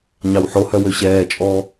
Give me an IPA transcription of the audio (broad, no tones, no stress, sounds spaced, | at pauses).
ɲ ɑ w ħ o h œ w ø ɕ ɛː t͡ʃʼ ɔː